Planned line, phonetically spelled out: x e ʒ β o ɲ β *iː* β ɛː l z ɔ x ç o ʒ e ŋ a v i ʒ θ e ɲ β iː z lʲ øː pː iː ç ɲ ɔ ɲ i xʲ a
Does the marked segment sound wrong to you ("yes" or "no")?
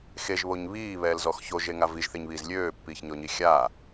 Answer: no